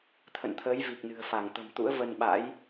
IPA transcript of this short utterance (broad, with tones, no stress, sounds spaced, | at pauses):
t̪ʰ ə̰˧˨ n t̪ʰ əː˨˦ j v i˨˩ k̚ n ɨ̤˨˩ ə̯ f a˧˩ ŋ t̪ ə̤˨˩ m t̪ ṵ˧˥ ə̯ v ə˧ n ɓ a̰˧˥ j